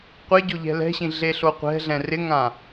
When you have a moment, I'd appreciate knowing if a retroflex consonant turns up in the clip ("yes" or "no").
no